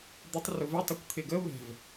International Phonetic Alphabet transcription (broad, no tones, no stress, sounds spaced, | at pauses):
d̪ ɪ tˤ r ʊ v ɪ tˤ ʊ kʷ t̪ʰ ɪ ɡ ə β ɛ̤ v